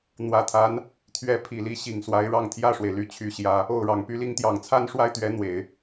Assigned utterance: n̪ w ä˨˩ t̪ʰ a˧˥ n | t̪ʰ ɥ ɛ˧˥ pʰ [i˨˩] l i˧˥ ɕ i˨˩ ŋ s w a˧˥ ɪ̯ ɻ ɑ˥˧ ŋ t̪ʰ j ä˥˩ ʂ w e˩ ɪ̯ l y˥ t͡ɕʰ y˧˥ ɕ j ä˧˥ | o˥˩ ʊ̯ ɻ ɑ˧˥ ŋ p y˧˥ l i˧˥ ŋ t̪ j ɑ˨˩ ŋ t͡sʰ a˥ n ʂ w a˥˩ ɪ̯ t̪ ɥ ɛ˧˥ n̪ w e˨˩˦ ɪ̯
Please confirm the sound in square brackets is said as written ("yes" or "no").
yes